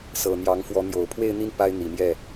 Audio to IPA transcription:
sɤ˨˩n̪jɑ˧˥ŋfwɔ˧˥n̪jo˨˩ʊ̯ pʰwe˥˧ɪ̯n̪i˥˩n pa˥ɪ̯n̪i˨˩mjɛ˥˩

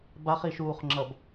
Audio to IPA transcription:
baχiʃuːχŋ͡ǁʌb

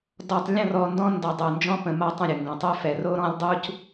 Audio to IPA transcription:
dɔ˨tˤ lʲə̃˦˨rɔ˨ ndɔ̃˦ndɔ˨ dˤo˨ nd͡ʒɔ̃˦pə̃˨ma˦ tˤə̃˦˨ɾʲə˨ ŋɡɔ̃˨tˤœ˦fɛ˨ ro˦ɾɔ̃˦lʲdˤu˦c

